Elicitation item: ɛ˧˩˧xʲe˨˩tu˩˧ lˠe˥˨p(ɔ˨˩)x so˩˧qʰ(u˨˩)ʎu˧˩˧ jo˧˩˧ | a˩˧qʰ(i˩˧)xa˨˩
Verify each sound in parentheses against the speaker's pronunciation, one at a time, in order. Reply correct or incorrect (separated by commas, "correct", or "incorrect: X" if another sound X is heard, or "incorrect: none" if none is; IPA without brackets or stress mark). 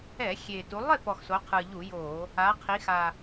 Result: correct, incorrect: ɯ˨˩, correct